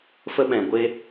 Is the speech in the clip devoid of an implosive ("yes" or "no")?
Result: no